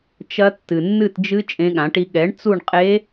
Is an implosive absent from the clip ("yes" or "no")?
no